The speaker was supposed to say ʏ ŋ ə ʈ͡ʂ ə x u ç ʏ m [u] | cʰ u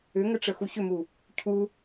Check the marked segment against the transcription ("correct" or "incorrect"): correct